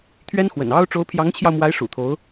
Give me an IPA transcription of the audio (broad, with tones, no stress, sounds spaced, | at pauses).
t̪ʰ ɥ ɛ˥ n x w ə̰˨˩ n ɑ˥ ʊ̯ ʈ͡ʂ o˧˥ ʊ̯ pʰ j ɑ˧˥ ŋ t͡ɕʰ j ɑ˧ ʊ̯ m w a˧˥ ɪ̯ ʂ ṵ˨˩ t̪ʰ o˧˥ ʊ̯